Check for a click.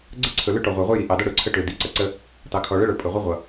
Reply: present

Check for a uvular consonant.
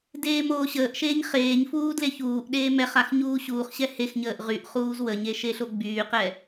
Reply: present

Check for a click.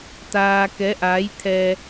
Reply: absent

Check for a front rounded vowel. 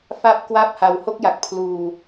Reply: absent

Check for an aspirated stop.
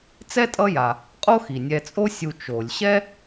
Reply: absent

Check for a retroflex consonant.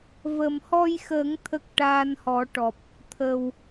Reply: present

